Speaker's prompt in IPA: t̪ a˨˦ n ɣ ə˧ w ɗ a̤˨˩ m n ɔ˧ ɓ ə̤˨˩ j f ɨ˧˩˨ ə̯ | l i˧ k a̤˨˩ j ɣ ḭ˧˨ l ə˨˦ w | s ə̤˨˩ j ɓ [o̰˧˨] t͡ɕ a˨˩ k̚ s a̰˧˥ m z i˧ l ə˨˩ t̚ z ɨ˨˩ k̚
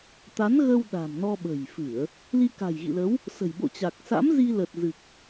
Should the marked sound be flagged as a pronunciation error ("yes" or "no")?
no